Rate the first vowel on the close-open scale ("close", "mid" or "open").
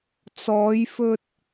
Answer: mid